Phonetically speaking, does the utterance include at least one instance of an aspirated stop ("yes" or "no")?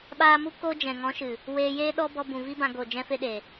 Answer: no